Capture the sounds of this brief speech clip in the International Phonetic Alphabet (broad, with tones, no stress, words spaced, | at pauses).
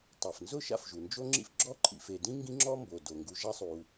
tˤɛ˩fnzʊ˥ ʃa̰˥fʒu˩nd͡ʒo˥ŋ͡ǁḭ˥f ɡ͡ǁɔ˥ ǃʰḭ˨fe˨dĩ˥ ŋɡĩ˦ŋ͡ǁɔ˦mbo˩ do˩ŋɡu˨ʒa˥sˤu˨